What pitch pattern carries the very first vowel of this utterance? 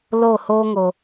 falling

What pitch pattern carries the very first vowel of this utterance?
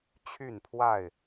falling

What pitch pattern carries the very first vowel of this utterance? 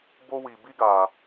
high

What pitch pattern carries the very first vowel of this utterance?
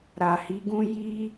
low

